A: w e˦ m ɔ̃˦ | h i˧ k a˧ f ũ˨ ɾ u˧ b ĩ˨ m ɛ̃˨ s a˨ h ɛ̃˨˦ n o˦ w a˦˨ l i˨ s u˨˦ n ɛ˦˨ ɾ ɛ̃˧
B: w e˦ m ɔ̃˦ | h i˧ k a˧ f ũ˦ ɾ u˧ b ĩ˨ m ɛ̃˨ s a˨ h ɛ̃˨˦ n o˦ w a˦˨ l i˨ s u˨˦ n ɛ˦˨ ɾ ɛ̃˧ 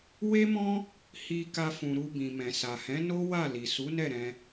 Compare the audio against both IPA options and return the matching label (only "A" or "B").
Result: A